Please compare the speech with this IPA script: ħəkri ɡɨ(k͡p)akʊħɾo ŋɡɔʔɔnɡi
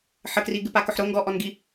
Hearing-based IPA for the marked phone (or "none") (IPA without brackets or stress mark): p